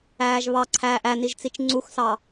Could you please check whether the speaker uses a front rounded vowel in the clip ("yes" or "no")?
no